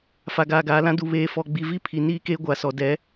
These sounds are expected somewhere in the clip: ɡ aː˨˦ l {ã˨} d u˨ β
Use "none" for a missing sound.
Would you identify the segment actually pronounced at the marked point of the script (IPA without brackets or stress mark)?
ã˦